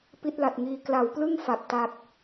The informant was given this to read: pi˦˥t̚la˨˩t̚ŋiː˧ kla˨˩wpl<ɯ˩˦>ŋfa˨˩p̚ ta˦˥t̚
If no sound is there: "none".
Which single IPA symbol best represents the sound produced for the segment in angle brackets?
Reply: ɯ˥˩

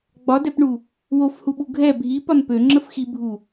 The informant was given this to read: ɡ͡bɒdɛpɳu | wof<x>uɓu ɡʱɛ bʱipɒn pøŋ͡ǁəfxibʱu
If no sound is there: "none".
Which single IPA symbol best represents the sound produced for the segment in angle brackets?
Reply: h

